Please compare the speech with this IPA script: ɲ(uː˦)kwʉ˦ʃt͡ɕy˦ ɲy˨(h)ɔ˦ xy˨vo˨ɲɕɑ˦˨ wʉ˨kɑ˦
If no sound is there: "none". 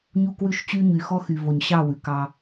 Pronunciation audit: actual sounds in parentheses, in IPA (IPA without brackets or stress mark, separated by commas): u˦, x